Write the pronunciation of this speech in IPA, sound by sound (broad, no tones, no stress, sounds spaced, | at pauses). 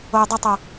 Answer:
o j dˤ ʊ tˤ ʊ